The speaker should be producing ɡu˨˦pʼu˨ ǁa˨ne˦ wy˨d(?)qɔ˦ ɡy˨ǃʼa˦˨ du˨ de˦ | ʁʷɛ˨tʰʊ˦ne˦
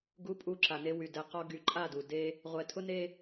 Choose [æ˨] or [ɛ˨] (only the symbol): ɛ˨